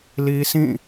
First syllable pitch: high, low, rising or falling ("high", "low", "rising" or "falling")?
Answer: high